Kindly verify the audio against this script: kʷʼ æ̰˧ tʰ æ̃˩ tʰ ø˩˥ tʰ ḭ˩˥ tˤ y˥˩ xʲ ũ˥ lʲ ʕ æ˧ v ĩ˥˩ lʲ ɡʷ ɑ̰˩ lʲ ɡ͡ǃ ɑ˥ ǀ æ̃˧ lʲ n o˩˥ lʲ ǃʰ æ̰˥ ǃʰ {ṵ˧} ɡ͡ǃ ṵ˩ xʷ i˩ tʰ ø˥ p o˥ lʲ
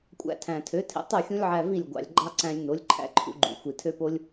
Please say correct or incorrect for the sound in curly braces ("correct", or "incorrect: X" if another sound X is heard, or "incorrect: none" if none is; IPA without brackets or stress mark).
correct